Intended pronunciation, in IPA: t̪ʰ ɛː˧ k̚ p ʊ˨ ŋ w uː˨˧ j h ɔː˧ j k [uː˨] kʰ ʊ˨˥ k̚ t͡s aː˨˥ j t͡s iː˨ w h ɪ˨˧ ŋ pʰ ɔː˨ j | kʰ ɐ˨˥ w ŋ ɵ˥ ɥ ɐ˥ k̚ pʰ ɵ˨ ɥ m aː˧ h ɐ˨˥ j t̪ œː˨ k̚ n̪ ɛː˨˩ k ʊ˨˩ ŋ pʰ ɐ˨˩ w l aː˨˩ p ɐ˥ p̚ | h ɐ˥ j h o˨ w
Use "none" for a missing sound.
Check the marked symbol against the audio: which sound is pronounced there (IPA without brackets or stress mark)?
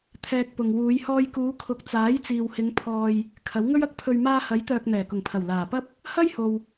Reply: uː˨˧